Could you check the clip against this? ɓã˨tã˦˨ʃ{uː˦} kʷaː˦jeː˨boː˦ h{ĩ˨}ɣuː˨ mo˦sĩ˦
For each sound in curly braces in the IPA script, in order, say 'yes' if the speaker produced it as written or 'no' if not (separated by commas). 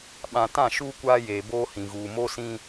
yes, yes